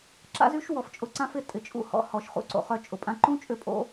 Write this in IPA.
ǁ a̰˦ z y˦ ʃ w ɔ˧ f t͡ʃʼ ʊ˧ ǀ ã˦ f ɪ˧ tʼ ɪ˨ t͡ʃʼ ṵ˧ h ɔ̰˨˦ h ɔ˨ ʃ χ ṵ˧ ǀ o̰˨ χ œ˧ t͡ʃʼ ʊ˨ pʼ ã˧ ǃ ũ˦ t͡ʃʼ ʏ˦˨ pʼ o̰˦

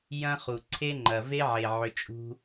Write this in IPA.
j ɐ̃˦ χ u˨ ǀʰ e˦ ŋ͡ǃ ɐ˨ v e˦ ʕ e˨ ʕ ʏ˧ t͡ʃʼ ṳ˦

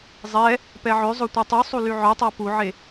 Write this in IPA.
zˤ ɛ | p ɛ ʕ ø zˤ o tʷ a tˤ y sˤ u l y ʕ œ tˤ a p u ʕ e

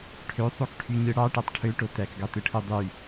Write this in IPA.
ʈʰ ø sˤ o k ʈʰ y ɲ ɯ ɽ ɑ ʈ æ tˤ ʈʰ ø ʈ o t æ k ɡ ɑ t ɯ ʈʰ ɯ dˤ y

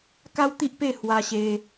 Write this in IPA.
k a˦ w t̪ i˦ ʔ p e˥˧ h w a˧ ɕ e˧

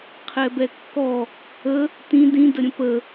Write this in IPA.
qʰ ɛ b ɛ kː ɔ | ə | t ĩ d ĩ d ə ɾʲ ə̃ p ə

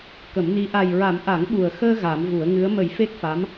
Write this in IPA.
k ə˨˩˦ m n i˧˥ ʔ a˨˩ j ɹ a˨˩˦ m ʔ a˨˩˦ ŋ ɓ u˨˩ ə̯ x əː˧ ɣ a˨˩˦ m v u˨˩˦ ə̯ ŋ ɨ˧˥ ə̯ m ə˨˩˦ j f e˦˥ k̚ f a˧˥ m

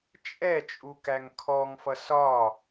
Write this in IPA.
t͡ʃʼ ɛ t͡ʃʼ u k æ ŋ kʰ ɔ ŋ f ʌ s ɒ

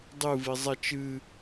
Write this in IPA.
dˤ ɨ v i zˤ ɛ t͡ʃ ɨ

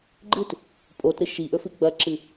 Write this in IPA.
ɡ͡ǃ ɨ t | pʼ o t ɾ ɨ ʃ i ʔ ɵ f ɨ ɡ͡b ɐ ǁ ɨ

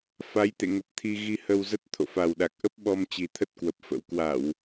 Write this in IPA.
f a˨˦ j t̪ ḛ˧˨ ŋ ə˨˩ p̚ t̪ʰ i˧ ɣ i˧ h ə˧ w z ə˦˥ t̚ t̪ʰ o̰˧˨ f a˨˩ w ɗ a˨˩ k̚ ʔ ə˦˥ p̚ ɓ ɔ˧ m t͡ɕ i˨˩ t̪ʰ ə˦˥ t̚ k w ə˨˩ p̚ f ə̰˧˥ w k w a˧˩˨ w

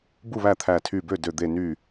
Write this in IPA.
b u˥˩ β æ˥˩ t̪ʰ æ˧˩ tʰ y˧˩ b ø˥˩ d ø˧˩ d̪ e˧˩ n y˧˩

